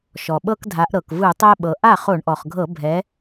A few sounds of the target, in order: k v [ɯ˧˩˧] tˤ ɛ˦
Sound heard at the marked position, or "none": ɯ˧˩˧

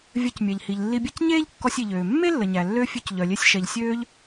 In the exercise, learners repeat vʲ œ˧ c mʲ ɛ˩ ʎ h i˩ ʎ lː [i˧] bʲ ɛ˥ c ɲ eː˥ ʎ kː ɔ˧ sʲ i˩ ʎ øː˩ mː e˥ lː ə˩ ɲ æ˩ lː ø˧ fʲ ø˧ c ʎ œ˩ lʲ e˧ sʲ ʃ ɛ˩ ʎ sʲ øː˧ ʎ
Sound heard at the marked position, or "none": i˧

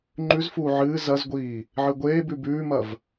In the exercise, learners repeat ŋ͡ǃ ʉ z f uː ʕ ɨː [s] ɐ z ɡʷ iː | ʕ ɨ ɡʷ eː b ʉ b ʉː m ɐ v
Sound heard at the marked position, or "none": z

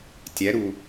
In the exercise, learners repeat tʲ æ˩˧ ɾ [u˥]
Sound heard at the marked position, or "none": u˩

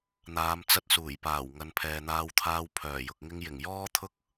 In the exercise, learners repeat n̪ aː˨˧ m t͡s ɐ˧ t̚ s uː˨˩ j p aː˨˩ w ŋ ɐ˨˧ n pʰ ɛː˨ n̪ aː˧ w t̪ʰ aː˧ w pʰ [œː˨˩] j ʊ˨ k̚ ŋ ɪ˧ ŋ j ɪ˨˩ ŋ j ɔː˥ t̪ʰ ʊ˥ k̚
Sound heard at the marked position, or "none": œː˨˩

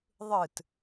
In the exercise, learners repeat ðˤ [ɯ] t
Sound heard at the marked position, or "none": ɯ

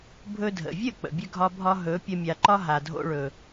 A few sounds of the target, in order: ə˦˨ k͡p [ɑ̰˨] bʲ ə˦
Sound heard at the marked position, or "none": ə̰˨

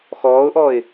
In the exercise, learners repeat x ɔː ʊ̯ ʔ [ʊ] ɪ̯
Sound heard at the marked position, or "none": ɔ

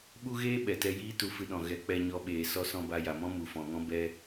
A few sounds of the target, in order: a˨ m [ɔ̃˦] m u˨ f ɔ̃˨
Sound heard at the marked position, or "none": ɔ̃˦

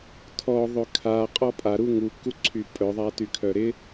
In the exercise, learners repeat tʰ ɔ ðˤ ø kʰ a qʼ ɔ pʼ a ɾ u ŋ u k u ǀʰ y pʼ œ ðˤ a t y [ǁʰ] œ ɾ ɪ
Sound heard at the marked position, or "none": kʰ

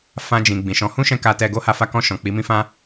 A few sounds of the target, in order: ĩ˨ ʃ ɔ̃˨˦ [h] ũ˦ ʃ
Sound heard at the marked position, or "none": h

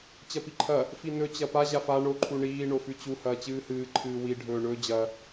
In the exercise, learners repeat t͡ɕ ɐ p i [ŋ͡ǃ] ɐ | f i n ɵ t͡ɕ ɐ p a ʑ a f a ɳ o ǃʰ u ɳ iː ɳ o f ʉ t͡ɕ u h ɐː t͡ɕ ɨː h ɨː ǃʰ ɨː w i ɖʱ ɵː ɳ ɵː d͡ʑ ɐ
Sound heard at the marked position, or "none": ǃʰ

